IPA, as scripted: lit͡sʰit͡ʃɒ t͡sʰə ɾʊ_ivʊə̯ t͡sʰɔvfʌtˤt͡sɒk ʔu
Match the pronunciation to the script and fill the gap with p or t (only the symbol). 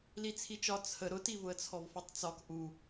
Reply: t